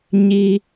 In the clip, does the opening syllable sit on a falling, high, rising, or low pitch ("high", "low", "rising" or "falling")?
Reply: high